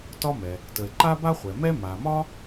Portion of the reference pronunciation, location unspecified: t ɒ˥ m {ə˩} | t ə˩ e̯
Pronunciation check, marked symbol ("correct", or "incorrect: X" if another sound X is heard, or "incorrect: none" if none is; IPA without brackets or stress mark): incorrect: ɛ˩